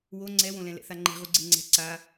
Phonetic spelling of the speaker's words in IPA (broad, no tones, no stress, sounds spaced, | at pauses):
w o ŋ͡ǀ ɛ w õ l ɛ̃ l ɛ̰ θ a ŋ͡ǃ e̤ ʁ u ɡ͡ǀ e ŋ͡ǀ ɛ̤ ǀ a